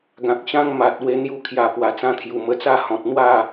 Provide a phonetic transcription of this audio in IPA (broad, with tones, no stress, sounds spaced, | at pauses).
ɡ ã˨ k̚ ɕ ã˦ ŋ m a˨ t̚ w e˧ n̪ j u˧ kʰ j a˨˩ p w a˨˩ t͡s ã˥˧ t̪ʰ j u˨˩ m ə˧ t͡s a˥˧ h ɔ̃˨ t̚ n̪ w a˥˧